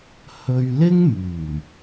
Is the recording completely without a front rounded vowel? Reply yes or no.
no